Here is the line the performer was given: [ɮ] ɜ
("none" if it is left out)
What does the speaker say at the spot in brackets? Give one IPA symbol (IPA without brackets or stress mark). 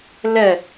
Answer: l